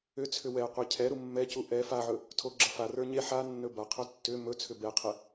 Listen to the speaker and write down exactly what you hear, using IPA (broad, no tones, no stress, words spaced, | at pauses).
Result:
ʏt͡sʰʏ wɛ qʷecʰɛɾu mːɛcu ʔɛ faʕɵ | tʰoɡ͡ǁʌfarə˞ ɲe ħa nːɵbaqʰɵ tːʏ mɵt͡sʰʏ bɛqʰɛ